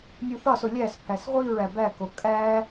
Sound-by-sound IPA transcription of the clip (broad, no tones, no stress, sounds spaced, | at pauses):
nʲ u θ ɒ s o lʲ æ s pʰ æ s ʁʷ i ɹ æ b æ k o kʼ æ